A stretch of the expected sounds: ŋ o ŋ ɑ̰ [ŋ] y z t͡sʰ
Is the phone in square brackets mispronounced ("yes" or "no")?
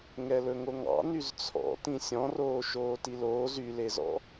yes